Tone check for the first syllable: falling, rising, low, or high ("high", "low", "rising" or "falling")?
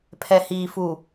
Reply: low